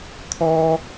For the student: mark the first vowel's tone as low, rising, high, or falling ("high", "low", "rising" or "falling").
high